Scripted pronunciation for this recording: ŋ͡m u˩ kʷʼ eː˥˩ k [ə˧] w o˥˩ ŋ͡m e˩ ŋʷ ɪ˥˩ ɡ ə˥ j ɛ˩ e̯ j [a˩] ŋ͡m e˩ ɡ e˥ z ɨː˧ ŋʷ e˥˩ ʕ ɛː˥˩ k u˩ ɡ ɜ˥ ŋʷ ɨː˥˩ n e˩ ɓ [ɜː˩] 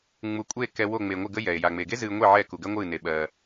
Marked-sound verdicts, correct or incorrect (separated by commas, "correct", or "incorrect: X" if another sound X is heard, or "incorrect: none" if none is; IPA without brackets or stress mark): incorrect: ɛ˧, correct, correct